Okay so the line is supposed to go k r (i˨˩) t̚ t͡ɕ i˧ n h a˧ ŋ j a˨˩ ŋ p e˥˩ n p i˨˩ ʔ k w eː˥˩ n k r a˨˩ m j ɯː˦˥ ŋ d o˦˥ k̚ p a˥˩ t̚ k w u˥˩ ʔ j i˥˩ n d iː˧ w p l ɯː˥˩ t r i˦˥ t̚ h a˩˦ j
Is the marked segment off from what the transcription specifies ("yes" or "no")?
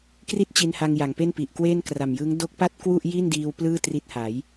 yes